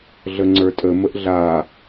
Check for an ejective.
present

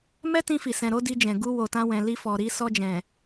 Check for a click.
absent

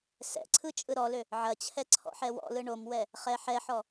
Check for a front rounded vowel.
present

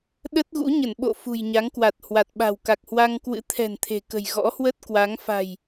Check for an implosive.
present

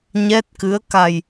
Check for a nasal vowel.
absent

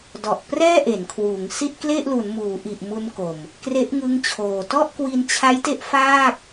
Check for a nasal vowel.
absent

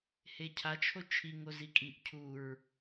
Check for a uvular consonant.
absent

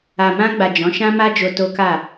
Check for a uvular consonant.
absent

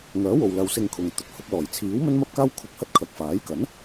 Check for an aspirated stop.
present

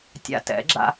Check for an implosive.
absent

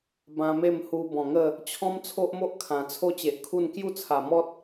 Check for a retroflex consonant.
absent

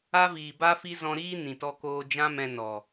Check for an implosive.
absent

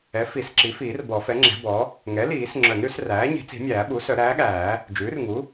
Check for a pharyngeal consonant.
absent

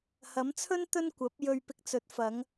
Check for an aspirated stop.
present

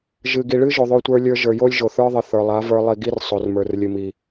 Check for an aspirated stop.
absent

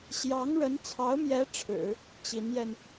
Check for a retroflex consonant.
present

